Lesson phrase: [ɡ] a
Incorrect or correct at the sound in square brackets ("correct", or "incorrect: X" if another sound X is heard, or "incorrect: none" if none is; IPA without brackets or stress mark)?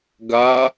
correct